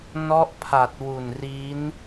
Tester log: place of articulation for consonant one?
alveolar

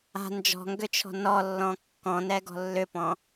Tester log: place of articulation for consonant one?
alveolar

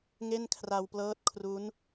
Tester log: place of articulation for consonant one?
velar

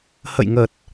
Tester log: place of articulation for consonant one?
glottal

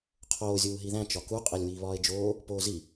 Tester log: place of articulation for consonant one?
uvular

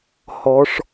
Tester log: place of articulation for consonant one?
glottal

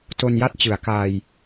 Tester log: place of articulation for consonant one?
alveolar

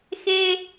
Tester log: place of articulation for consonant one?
velar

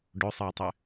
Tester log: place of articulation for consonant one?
retroflex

